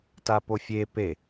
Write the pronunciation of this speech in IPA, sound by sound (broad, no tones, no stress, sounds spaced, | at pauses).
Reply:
t a p o fʲ e p e